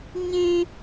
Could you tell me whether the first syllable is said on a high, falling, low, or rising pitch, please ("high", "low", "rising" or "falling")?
high